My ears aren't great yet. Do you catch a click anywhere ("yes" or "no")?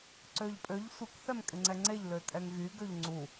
yes